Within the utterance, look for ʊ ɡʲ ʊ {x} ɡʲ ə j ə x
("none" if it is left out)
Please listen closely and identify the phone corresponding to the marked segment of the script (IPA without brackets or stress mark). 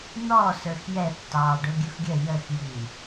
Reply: x